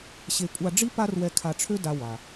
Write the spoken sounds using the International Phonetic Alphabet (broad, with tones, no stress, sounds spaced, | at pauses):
ɕ e˧ kʷʼ a˧ ɖ͡ʐ i˥ p a˥ r w ɛ˧ kʰ a˧ ʈ͡ʂʰ ø˥ d a˧ w a˩